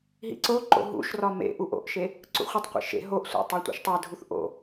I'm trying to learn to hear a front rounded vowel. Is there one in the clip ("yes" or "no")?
no